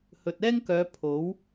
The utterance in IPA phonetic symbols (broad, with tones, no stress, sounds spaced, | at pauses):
h ɵ˨ t̚ ɛː˥ ŋ k œː˨˧ pʰ o˨˥ w